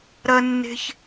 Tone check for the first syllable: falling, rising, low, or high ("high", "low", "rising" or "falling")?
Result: high